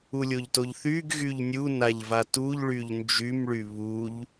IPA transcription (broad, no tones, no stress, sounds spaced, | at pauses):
u lʲ o ʎ t o ʎ θ y ɡ ɣ y ʎ nʲ u n a ʎ v a t u ʎ ɭ y ʎ n d͡ʒ y m ɭ y β u ʎ